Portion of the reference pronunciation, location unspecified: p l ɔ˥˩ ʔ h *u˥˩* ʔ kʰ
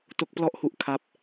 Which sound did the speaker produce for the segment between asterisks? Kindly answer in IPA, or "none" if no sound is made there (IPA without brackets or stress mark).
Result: u˦˥